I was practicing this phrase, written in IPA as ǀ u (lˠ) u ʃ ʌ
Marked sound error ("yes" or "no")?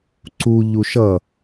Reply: yes